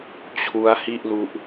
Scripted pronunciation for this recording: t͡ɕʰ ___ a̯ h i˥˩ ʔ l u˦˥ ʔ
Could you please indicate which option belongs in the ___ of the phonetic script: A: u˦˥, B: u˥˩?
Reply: A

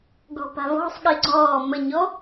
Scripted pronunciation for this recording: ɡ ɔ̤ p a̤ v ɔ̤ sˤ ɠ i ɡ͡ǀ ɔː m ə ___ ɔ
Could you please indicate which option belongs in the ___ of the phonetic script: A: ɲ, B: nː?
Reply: A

